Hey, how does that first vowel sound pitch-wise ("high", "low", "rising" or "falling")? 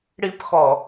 high